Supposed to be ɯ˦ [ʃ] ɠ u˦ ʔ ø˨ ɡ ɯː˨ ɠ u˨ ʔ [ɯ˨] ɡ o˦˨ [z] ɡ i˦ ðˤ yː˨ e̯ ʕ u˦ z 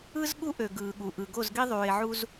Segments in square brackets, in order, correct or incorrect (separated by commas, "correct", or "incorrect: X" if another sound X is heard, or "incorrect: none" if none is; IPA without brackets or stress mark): incorrect: z, correct, correct